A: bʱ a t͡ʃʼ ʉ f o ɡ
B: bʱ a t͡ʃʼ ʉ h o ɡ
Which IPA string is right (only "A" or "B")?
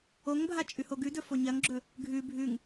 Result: B